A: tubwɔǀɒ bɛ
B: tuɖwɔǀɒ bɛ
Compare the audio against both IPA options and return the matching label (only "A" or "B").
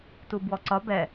A